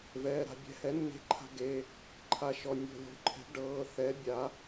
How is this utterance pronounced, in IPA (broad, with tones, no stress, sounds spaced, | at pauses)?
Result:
v ɛː˩˧˩ ɾ a̤˩˧ bʲ ɛ̤˩˥ h ɛ˩˥ nː e̤˧ ǃʰ a̤˧ ɡ e˩˧˩ | ǃʰ a˧ ʃ ɔ˩˧˩ nʲ o̤˧˩˧ lʲ o̤˩˥ ǃʰ ɛ̤˩˥ ɖ ɤː˩˧˩ θ ɛ˩˥ bʲ a˩˧